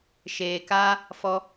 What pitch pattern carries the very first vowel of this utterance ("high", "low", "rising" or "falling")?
low